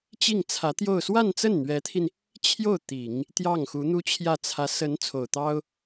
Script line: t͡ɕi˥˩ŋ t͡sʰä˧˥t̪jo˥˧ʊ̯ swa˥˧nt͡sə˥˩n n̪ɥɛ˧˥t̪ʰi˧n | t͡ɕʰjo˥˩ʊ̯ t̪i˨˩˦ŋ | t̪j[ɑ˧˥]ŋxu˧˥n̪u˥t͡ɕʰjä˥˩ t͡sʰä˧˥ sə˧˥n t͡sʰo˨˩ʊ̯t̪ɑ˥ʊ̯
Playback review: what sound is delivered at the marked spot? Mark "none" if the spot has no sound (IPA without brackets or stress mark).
ɑ˥˩